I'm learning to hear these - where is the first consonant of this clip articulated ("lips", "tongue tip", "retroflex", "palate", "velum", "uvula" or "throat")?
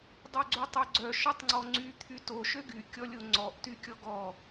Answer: tongue tip